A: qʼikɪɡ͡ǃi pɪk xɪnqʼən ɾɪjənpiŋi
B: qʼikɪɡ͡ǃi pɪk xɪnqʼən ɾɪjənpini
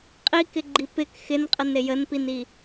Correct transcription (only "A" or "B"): B